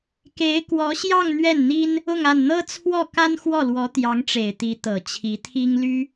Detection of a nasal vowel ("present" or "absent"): absent